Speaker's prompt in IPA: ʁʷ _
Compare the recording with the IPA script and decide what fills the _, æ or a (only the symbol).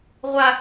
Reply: a